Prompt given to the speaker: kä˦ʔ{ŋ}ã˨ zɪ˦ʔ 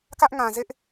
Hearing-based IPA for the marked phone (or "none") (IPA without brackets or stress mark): ŋ